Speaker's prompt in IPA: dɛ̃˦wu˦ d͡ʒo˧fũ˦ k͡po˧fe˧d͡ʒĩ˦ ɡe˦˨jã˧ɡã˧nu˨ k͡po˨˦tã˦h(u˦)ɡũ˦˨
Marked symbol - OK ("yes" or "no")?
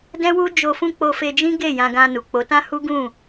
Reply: yes